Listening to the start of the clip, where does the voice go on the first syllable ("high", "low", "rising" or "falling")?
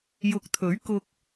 rising